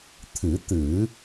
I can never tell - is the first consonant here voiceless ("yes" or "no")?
yes